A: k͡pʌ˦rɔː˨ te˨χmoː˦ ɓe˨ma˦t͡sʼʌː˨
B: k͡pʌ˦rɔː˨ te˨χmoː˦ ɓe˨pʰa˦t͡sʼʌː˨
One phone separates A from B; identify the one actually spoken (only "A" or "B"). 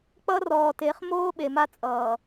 A